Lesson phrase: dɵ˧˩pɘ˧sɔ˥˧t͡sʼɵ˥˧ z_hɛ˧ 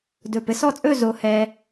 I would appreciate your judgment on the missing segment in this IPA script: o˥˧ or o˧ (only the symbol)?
o˧